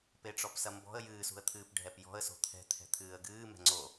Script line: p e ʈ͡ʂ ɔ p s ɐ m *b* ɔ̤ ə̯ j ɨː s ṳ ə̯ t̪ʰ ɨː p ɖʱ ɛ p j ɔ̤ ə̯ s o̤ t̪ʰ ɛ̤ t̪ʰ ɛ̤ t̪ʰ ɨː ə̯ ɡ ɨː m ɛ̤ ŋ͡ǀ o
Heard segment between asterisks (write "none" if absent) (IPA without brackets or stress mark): b